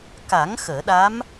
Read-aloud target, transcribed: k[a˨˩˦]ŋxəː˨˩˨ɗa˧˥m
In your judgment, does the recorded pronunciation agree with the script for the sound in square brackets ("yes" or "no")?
yes